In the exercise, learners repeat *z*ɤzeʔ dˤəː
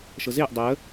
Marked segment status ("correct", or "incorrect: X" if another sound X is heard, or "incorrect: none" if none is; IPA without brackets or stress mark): incorrect: ʃ